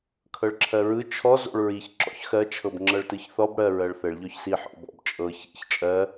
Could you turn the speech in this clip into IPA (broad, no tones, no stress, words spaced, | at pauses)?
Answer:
kʰɤɭǁʰɜɹɯ t͡ʃʰɔ zo̰ɭɹiç ǁɔ̰çxɜ t͡ʃʰɤbŋ͡ǁɤɭtɯçθɔb ɽɜ ɹɜɭθɘɭ ʎɔçsi ħɔ̰bɔ̰b t͡ʃʼɤ çḭç t͡ʃʼɜ